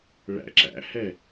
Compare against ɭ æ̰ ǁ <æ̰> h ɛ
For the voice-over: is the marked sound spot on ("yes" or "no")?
yes